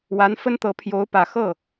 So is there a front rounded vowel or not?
no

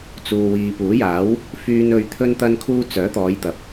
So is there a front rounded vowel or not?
yes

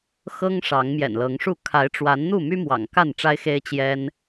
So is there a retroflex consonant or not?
yes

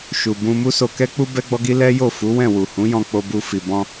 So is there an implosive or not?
no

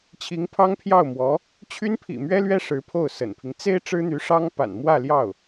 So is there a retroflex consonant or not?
yes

